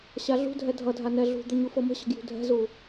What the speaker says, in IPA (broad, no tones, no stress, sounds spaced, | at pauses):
ɕ a ɮ ṳ dʱ ɛ dʱ ʌ dʱ a n ɛ ɮ ṳ d̪ ə ɲ u f ɤ m ə̤ ɕ ə̤ ɡ j ṳ dʱ ɛ̤ z u